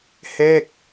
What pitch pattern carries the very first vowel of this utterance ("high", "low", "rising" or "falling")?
falling